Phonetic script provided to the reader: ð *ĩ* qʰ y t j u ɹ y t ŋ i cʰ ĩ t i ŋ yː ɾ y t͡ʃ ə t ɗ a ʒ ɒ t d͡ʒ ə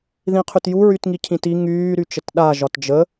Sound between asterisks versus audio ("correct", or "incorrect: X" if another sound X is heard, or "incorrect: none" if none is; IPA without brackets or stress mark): correct